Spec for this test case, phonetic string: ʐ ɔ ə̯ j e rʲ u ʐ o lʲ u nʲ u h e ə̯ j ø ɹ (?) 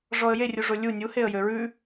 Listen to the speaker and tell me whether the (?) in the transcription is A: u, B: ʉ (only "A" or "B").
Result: B